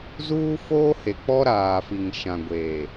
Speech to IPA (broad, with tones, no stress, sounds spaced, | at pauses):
z uː˦ f oː˦ h e˨ k͡p ɔ˦ ɾ aː˨ f i˨ ŋ ʃ ã˨ ɡʷ eː˨